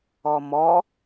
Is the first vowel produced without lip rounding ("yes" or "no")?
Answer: no